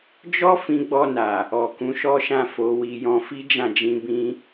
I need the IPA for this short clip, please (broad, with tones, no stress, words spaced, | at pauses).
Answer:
d͡ʒɔ˦ fĩ˧ɡ͡bɔ˧na˨ | ɔ˨kũ˨˦ʃɔ˦ʃã˦˨ fo˨˦wi˧jɔ̃˦ fi˦d͡ʒã˦˨d͡ʒĩ˧bĩ˧